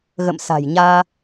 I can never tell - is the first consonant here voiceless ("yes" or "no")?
no